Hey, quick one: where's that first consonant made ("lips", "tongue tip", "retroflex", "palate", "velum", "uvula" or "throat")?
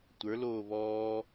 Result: tongue tip